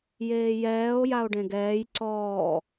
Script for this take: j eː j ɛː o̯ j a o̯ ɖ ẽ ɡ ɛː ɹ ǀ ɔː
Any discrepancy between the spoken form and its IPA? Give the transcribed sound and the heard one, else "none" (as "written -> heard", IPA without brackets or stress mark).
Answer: ɹ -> j